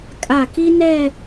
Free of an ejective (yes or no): no